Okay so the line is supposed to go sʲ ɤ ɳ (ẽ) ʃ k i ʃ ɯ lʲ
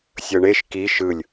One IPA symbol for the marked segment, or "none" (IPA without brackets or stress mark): e